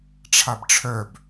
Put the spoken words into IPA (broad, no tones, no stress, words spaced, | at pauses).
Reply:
ʈ͡ʂʰabʈ͡ʂʰœb